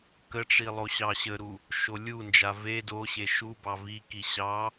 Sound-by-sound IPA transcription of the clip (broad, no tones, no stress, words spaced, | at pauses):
kəʈ͡ʂi lˠoɕɑɕəɾu | ʃolʲund͡ʒa ve doɕe ʃubɑ viki ɕɑ